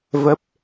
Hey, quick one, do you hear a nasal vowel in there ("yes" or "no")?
no